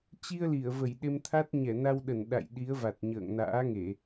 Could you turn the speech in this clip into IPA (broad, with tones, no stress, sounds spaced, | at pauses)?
t͡ɕ i˧ ə̯ l i˧˩ ə̯ v ə˧˩ j ɗ e˧ m t̪ʰ a˦˥ t̚ ɲ ɛ˧˩ n a˧ w ɗ ə˧˩ n ɗ a̰˧˨ j ɗ i˨˦ ə̯ v a˨˩ t̚ ɲ ə̰ː˧˨ ŋ n a̰ː˧˥ ŋ e˧˩˨